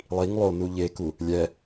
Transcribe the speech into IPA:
lˠ i ŋ lˠ o n u ʎ e k u | lʲ ɛ

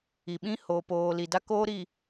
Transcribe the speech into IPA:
i˨ ɓ ĩ˦ h o˨ p oː˨ l i˨ d a˦ k oː˦ ɾ i˨

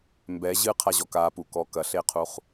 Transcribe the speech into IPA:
m b ɛ ʑ ɨ qʰ a ʑ ɔ k a p u k ɔ k ɐ ɬ e qʰ u χ

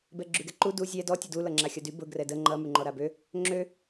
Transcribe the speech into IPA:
b ɛ ɡ͡ǁ y ɡ ɛ ǃ u d u zʲ ɛ d ɔ tʲ ʊ d u l ʌ ŋ͡ǁ a xʲ ʌ d y b ʊ ɡ r ɛ d ə ŋ͡ǃ ʌ m y ŋ͡ǃ ɔ ɾ a b ø | ŋ͡ǁ ø

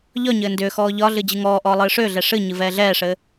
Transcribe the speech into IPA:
ʎ ɒ ɲ ɘː n d ʏː x ɔː ʎ ɒ ɮ ɨ d͡ʑ ɨ ŋ ɔː ʔ ɔː lˠ ɨː ʂ ʏː ɮ ɛ ʂ ɨ ɲ ɨ v ɛː ɮ ɛː ʂ ɘː

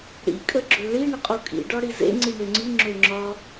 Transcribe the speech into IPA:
ɽ ḭ kʼ ə ɡ͡ǁ ø ɭ i ɳ ə qʼ u kʼ ḭ ɖ ɒ ɽ i z ḛ ŋ͡ǀ i ɳ ø ŋ͡ǀ i ŋ͡ǁ ø ŋ͡ǁ ɒ

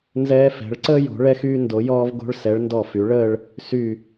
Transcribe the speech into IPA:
n z ɛː˧ f ɛ̤˩˧ ɭ ǀ əː˥ j o̤˩˧ ɭ ɛ˧ x yː˧ n d o˩˧ j ɔː˧ v ɡ o̤˧ ɭ s ɛ˩˧ ɭ n d ɔ˧˩ f y˩˧ ɭ əː˥˧ ɭ | s y˧˩

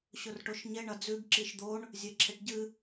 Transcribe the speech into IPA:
ɕ ɵ r ʈ o ʃ ɲ e ɳ ɐ d͡z ʉ ɡ ǁ i ʃ d̪ o ɳ | zʲ e ǁʰ e ʈ ɟ ɨ

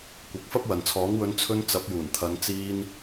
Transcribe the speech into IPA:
kʷ ɐ˨˥ k̚ f ɐ˥ p̚ w ɐ˨ n t͡sʰ ɔː˨˥ ŋ w ɵ˨˧ n t͡sʰ ɵ˧ n t͡s ɐ˨˥ p̚ j uː˨˩ n t̪ʰ ɐ˨˧ n t͡s iː˧ n

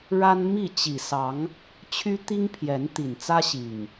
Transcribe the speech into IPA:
ɻ a˦ n m i˥˨ t͡ɕ i˨˩ s ɑ˨˦ ŋ | t͡ɕʰ y˦ t̪ i˦ ŋ pʰ j ɛ˨˦ n t̪ i˨˩ n t͡s ä˦ ɕ i˨˩ ŋ

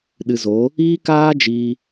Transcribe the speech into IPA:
ɗ ɨ˨ z o˨˦ | iː˦ k aː˦ d͡ʒ iː˧

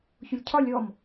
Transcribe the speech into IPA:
ç ʊ lʲ cʰ ɒ lʲ ɔ m

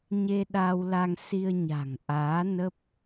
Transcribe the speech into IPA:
ɲ e˧ ɗ a˧ w l a˧ ŋ s i˧ ə̯ ɲ a̤˨˩ ŋ ʔ aː˨˦ n ə˦˥ p̚

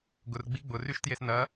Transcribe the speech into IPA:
ɡ ʊ r ɡ͡b i ɡ͡b ʊ r y ʃ t j e s n ɐ

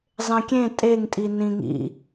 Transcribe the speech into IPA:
zˤ ẽ kʲ ẽ tʼ e ŋ tʼ i n ĩ ŋ ḭ

